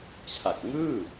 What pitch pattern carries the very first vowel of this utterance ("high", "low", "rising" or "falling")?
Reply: low